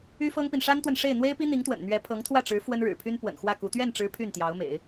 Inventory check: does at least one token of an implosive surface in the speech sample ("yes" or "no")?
no